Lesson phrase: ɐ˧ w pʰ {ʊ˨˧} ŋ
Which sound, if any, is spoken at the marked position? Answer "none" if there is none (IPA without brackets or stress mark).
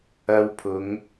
ʊ˨˧